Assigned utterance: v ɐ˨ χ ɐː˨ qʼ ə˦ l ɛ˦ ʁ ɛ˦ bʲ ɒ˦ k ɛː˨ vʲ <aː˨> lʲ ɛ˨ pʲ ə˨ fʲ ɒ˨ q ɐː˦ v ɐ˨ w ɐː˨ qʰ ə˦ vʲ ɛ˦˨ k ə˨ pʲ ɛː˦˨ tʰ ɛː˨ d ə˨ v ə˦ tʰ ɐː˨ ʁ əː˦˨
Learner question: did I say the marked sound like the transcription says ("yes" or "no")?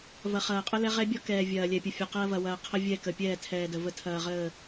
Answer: no